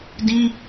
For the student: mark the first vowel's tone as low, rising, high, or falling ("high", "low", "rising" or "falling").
high